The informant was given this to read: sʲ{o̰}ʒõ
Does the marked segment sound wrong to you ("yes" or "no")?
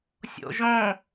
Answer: no